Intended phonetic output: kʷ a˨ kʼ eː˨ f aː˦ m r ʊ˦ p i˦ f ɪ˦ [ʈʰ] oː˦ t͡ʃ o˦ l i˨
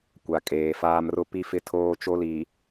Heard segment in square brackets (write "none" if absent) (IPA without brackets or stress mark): tʰ